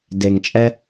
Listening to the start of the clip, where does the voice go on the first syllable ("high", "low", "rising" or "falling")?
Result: low